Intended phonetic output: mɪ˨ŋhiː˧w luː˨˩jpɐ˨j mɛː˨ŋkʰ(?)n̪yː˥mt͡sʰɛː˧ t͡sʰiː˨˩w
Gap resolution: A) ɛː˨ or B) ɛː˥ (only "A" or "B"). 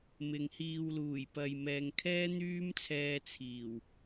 B